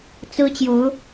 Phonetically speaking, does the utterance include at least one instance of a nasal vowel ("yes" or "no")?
no